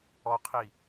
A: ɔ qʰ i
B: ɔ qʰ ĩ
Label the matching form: A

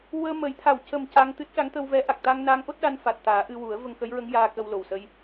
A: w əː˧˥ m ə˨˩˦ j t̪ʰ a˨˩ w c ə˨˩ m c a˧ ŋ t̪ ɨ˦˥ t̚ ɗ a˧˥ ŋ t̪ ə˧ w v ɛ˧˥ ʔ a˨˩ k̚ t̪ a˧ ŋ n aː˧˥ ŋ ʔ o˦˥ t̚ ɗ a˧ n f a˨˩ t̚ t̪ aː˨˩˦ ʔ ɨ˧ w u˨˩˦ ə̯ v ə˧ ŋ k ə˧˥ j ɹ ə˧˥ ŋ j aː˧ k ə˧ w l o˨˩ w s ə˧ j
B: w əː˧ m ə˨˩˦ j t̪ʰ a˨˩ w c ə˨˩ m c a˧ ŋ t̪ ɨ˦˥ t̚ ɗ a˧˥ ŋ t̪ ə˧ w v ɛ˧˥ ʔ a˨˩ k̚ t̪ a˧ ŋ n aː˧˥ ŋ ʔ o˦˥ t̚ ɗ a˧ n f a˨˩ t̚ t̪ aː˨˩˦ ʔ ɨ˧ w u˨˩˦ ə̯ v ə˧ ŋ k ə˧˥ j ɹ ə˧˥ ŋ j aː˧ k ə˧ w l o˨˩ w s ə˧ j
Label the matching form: B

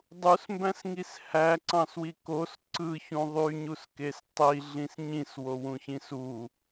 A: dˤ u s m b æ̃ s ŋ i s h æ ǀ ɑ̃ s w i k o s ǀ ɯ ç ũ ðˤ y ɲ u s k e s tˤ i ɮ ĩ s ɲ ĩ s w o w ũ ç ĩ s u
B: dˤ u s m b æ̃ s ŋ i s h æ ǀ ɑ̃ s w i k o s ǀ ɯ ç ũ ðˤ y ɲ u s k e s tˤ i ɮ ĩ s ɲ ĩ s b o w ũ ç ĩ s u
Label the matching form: A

